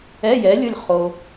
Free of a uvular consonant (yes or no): no